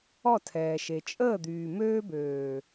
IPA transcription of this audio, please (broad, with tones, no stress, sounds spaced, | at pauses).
ɔ˦˨ tʰ ɛː˨ ʃ e˨ t͡ʃʼ əː˦˨ d̪ yː˨ m øː˧ b øː˨